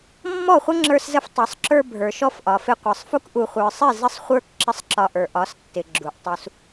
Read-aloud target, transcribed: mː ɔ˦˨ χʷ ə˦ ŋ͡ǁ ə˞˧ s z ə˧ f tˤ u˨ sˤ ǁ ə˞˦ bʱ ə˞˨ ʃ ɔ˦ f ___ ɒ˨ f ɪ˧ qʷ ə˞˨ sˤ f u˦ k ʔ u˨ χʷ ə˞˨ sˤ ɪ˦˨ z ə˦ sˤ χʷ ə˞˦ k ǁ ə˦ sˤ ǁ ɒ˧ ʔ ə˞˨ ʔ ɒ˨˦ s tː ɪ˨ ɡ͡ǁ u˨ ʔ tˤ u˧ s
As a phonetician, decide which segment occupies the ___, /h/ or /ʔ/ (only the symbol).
ʔ